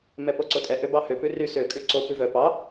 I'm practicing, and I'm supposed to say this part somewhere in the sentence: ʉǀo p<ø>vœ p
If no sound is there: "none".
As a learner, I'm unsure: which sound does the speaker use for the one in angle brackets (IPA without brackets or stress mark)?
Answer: ʉ